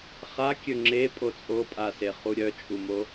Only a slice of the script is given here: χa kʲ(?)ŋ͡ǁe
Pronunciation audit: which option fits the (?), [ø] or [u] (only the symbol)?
ø